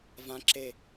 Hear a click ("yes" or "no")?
yes